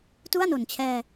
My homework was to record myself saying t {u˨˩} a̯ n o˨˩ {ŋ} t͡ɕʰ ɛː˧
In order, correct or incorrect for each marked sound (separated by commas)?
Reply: incorrect, incorrect